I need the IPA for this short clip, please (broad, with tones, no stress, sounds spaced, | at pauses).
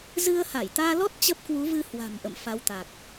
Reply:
z ɨ˧ ə̯ h a˧˩ j t̪ aː˧ l ɔ˦˥ t̚ t͡ɕ ə˦˥ p̚ k w u˨˦ v ɨ˧ h w a̤˨˩ m ʔ ə̰˧˨ m f a˨˦ w t̪ a˨˩ k̚